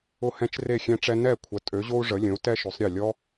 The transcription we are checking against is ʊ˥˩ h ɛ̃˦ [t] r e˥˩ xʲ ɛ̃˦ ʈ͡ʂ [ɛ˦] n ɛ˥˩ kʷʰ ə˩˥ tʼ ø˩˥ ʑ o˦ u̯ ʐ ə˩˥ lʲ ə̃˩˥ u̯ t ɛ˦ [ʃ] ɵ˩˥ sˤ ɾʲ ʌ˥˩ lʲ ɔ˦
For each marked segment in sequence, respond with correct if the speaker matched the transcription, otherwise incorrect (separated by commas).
incorrect, correct, correct